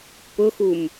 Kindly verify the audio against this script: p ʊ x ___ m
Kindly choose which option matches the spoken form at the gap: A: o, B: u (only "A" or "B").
B